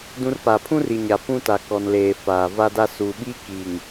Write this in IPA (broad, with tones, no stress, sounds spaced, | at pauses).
d ũ˦ r p a˨ pʰ ũ˦ r i˨ ɲ a˨ p ũ˦ t a˨ k ɔ˨ n l eː˨ f aː˨ v a˦ d a˦ s u˨ ɓ i˦ k i˨ ŋ